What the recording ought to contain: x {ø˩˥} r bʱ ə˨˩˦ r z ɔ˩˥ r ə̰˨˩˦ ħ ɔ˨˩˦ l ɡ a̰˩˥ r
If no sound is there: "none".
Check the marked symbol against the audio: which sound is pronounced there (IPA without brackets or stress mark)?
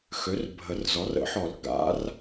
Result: ø˩˥